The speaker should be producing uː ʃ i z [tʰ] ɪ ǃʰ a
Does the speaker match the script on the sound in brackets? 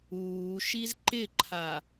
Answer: no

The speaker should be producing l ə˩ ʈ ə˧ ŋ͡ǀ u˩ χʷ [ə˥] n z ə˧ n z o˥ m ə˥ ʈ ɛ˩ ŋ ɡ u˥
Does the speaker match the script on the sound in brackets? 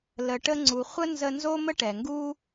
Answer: yes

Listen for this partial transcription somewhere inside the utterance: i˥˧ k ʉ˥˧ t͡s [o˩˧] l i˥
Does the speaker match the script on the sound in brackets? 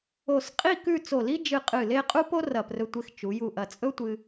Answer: no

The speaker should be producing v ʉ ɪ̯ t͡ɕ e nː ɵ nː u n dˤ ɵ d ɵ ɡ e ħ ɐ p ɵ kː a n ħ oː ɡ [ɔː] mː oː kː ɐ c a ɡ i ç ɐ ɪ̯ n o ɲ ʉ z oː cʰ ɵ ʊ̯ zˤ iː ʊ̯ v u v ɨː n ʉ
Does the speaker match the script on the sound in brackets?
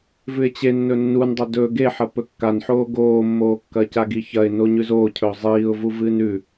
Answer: no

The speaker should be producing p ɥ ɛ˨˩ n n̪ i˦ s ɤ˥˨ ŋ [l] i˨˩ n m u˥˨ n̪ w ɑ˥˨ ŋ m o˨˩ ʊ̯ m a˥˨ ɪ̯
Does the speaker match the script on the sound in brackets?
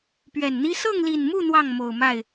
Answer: yes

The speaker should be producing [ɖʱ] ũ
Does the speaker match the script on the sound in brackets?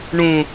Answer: no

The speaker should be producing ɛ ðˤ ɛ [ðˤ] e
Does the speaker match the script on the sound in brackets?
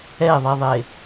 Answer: yes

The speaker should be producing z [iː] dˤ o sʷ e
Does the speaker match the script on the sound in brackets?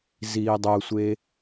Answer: yes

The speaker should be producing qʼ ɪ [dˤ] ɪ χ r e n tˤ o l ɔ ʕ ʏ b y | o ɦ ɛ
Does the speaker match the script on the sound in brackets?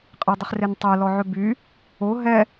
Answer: yes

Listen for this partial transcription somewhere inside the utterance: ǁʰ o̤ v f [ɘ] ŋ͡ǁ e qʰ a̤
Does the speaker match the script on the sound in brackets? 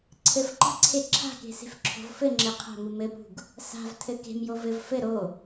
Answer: yes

